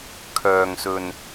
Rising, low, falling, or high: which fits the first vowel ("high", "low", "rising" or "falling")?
low